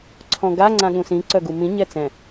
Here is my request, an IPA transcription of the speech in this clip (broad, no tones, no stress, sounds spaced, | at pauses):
ǀʰ ɔ̃ ɡ a ŋ͡ǀ ã ɠ ũ s ĩ ǀ œ ɡ u m ĩ ɲ ɛ t͡s ɛ̃